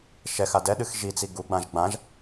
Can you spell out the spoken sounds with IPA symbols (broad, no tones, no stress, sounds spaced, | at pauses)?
ʃ ɛ x a d ɛ ɗ ɨ x ʒ i t͡s i ɡ u ɡ͡b ã ʒ ɡ͡b ã ʒ